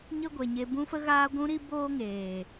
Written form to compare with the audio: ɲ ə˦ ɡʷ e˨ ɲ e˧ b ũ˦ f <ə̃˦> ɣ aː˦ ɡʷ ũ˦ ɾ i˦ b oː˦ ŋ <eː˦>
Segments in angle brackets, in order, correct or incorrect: incorrect: ə˦, incorrect: eː˨

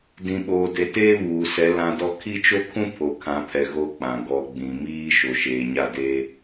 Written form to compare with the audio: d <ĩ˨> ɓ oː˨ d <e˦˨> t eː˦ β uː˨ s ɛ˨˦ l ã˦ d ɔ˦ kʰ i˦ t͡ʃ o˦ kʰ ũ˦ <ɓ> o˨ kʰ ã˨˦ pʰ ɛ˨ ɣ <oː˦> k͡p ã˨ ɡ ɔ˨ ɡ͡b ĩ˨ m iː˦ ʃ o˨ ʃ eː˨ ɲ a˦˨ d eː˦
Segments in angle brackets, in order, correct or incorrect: correct, incorrect: e˨, incorrect: pʰ, incorrect: o˦

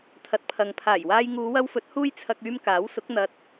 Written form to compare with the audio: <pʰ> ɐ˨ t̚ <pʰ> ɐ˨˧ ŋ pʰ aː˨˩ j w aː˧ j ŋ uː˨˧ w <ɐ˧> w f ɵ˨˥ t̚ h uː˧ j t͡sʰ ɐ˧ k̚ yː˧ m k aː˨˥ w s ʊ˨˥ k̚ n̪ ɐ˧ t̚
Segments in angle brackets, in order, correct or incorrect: incorrect: t̪ʰ, correct, correct

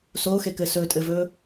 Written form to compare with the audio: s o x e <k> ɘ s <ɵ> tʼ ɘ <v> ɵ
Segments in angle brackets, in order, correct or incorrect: correct, correct, correct

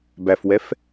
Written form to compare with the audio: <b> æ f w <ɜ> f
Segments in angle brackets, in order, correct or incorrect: correct, incorrect: ɛ

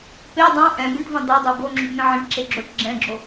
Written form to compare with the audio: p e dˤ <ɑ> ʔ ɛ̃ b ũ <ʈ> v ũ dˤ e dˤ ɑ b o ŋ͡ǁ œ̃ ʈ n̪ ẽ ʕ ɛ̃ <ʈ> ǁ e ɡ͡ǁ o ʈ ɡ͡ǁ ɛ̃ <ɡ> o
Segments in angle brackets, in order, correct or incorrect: incorrect: ɑ̃, correct, correct, incorrect: ɡ͡ǁ

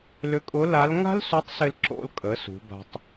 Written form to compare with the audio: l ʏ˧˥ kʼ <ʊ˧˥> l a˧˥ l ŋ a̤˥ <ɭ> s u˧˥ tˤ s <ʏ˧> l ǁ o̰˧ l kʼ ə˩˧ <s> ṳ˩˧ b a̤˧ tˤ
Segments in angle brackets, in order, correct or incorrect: correct, incorrect: l, incorrect: ɪ˧, correct

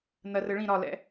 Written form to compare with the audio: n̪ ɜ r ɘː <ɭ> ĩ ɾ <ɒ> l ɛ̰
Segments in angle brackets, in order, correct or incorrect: correct, correct

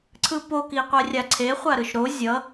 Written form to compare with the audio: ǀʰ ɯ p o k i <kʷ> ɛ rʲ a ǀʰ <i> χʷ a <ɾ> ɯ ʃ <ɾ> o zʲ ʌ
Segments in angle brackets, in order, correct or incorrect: incorrect: qʷ, incorrect: e, correct, correct

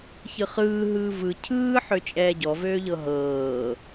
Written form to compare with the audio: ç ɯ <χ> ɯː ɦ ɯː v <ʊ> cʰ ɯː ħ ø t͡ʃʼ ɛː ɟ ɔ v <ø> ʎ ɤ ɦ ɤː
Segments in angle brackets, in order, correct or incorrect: correct, incorrect: ɯ, incorrect: øː

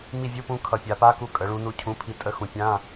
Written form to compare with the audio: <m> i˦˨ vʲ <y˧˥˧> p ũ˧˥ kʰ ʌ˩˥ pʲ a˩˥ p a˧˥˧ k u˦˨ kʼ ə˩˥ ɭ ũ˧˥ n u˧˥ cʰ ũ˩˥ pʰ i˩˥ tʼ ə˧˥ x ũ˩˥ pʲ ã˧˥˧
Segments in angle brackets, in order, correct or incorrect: correct, incorrect: u˧˥˧

